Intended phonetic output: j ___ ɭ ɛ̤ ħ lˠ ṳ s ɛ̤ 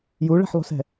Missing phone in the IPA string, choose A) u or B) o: A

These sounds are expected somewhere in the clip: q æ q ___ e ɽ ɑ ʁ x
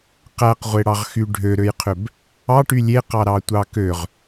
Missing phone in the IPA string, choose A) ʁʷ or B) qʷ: A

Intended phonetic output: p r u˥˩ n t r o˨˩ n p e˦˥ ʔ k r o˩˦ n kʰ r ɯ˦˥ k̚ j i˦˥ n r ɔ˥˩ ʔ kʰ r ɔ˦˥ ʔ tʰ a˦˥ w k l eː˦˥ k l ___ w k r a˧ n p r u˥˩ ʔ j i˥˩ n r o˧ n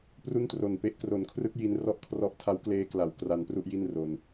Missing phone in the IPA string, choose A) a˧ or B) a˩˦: B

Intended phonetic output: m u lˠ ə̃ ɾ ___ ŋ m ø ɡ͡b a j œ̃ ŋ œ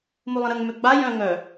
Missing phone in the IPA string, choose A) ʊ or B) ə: B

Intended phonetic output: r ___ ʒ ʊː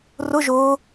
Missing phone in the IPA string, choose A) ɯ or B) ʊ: B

